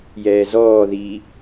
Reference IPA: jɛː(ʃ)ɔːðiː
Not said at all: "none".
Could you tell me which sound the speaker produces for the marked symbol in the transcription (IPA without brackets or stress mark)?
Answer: z